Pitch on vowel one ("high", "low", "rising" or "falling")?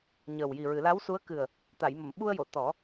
low